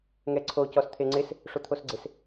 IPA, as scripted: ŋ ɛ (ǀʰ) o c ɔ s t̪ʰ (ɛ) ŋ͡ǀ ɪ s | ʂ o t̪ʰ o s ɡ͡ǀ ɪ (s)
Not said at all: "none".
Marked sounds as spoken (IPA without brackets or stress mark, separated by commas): ǀʰ, e, s